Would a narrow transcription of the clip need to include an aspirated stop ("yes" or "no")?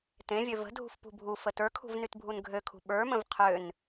yes